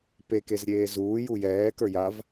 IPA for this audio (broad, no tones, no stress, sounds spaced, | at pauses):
p e k e z ɾʲ eː z uː j u j ɛː k ə˞ j a v